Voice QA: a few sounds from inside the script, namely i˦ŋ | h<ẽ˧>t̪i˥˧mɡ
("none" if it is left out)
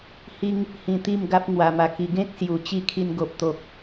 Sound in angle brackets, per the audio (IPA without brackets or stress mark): ĩ˧